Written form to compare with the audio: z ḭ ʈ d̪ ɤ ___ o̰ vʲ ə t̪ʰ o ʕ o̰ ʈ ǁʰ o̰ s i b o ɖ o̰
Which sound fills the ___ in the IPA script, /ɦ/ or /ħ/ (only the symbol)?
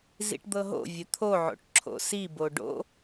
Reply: ɦ